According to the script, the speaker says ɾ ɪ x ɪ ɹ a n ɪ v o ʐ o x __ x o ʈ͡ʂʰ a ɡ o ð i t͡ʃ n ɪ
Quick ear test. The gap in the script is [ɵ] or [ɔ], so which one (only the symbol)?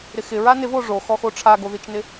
ɔ